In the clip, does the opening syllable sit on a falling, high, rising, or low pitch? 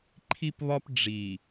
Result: high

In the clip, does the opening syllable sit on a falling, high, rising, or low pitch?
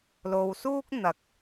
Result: low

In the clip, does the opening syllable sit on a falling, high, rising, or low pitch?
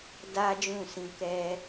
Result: high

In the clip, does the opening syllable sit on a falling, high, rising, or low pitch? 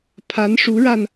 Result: rising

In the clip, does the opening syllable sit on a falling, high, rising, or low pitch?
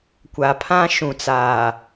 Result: low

